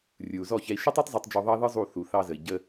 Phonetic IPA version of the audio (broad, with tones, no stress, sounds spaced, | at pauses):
rʲ ɯ˨ u̯ z ɔ˦˨ ç ɛ˧ i̯ ʃ ɯ˦ tˤ æ˦ tˤ zˤ ɛ˧ tˤ d͡ʒ o˧ ðˤ ɑ˦ ð ɯ˦ zˤ u˦˨ θ u˨ θ ɑ˧ z ə˨ i̯ ɟ ə˧